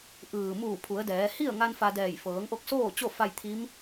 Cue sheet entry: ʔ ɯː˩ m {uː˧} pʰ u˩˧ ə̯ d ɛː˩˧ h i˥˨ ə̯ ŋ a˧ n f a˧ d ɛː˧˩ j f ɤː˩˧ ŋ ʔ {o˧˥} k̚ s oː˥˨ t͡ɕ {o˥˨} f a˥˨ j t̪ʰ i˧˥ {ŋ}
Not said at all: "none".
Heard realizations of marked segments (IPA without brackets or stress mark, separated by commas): uː˧˩, o˧, o˥˨, m